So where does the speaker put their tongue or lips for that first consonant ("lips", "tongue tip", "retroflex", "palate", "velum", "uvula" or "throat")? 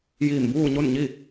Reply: palate